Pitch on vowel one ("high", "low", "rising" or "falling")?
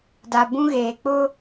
low